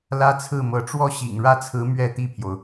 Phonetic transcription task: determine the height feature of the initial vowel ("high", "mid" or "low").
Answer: low